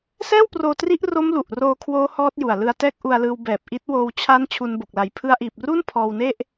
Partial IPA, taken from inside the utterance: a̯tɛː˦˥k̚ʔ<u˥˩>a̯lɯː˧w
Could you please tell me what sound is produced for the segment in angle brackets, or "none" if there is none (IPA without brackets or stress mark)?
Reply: u˧